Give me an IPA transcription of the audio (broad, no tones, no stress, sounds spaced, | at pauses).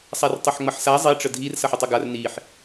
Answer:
sˤ a r tˤ ʌ ħ ŋ͡m ʌ ħ s a zˤ i ʈ͡ʂ ə dʱ i r s ʌ ħ ə tˤ ə ɡ a r n i ħ